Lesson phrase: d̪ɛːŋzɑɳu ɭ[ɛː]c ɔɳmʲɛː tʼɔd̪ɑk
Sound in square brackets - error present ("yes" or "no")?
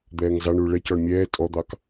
yes